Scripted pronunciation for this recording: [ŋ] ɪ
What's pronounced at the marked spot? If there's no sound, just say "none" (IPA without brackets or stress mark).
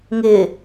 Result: ŋ